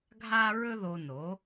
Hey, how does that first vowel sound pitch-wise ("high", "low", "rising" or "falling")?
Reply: high